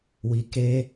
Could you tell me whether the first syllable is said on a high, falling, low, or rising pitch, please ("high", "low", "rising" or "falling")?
low